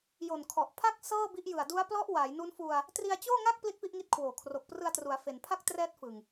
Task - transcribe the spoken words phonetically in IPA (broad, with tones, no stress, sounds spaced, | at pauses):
j o˨˩ n kʰ ɔ˨˩ ʔ pʰ a˥˩ k̚ s ɤː˥˩ b i˦˥ ʔ j ɯ˨˩ a̯ d u˦˥ a̯ p l ɔ˦˥ ʔ w a˩˦ j n u˦˥ n f u˧ a̯ | t r i˧ a̯ t͡ɕ oː˥˩ ŋ a˥˩ k̚ p l i˥˩ t̚ p i˥˩ ʔ ŋ i˦˥ t̚ kʰ w oː˨˩ kʰ r o˨˩ k̚ p r ɯ˧ a̯ t r u˩˦ a̯ f e˩˦ n pʰ a˥˩ k̚ t r ɛː˦˥ t̚ f ɯ˨˩ ŋ